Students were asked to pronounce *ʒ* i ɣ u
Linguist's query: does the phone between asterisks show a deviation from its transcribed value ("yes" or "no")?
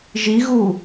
no